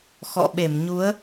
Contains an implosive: yes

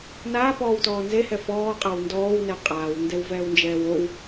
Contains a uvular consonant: yes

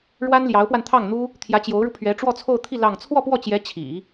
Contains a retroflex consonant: yes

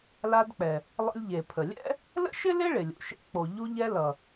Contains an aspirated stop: yes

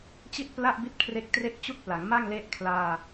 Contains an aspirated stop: yes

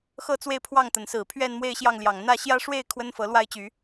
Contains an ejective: no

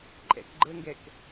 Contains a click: yes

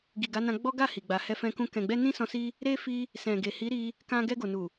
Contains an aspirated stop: no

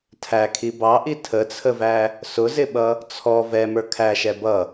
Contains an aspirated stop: yes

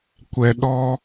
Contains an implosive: yes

